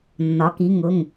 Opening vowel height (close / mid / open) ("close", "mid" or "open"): open